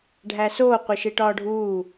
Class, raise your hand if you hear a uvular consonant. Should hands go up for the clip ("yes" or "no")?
yes